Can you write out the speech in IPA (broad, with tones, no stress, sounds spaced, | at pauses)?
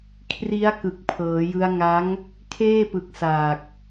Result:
kʰ r i˦˥ a̯ k ɯ˨˩ k̚ pʰ ɤː˩˦ j ɯ˦˥ a̯ ŋ a˦˥ ŋ | kʰ eː˥˩ p ɯ˨˩ k̚ s aː˨˩ k̚